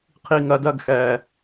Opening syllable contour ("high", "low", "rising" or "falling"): low